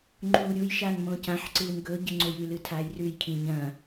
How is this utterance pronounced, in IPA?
ŋ͡ǃ uː ɾʲ u j ʃ aː n m õ c ã ħ ǀ ɨː n ɡ ɵ ɟ ɨ ŋ͡ǀ o j ʉ l ɨ tʰ aː j r ʉ j kʰ ĩ ɲ ɐ̃

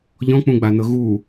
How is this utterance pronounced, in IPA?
ʎ ɔ̃ k͡p ũ ɡ͡b a n ɤ ɣ u

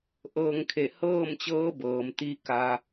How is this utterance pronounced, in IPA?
ʔ ɤː˧ ŋ kʰ e˧˩ h ɤː˥˨ m t͡ɕ ɤː˧˥ b ɤː˩ m t̪ i˧˥ k a˧

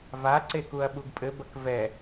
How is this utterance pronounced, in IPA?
v a ǀ e k u ɐ̯ ɓ u ɡ pʼ ɘ b ɐ k v ɛ

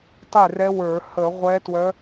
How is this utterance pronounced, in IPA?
tˤ e˥˩ r ɛ˧˥ w ə˞˧˩˧ h ə˧˩˧ ʁʷ ɛ˧˥ t w œ˧˥

